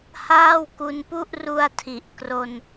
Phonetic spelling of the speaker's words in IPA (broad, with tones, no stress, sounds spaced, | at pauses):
h aː˥˩ w k u˧ n p u˥˩ ʔ r u˧ a̯ tʰ i˨˩ ʔ k r o˧ n